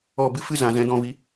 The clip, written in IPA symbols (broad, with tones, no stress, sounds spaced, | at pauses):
ɔ˦˨ b ɨ˦ f ɨ˦ z ã˨ z ɛ̃˨˦ d ɔ̃˧ v i˨˦